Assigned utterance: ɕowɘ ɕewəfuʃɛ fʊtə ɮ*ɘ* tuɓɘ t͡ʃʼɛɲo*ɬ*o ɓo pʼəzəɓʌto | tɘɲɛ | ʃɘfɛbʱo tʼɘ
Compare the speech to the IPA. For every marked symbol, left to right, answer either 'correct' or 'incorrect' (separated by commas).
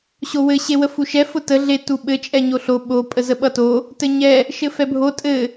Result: incorrect, correct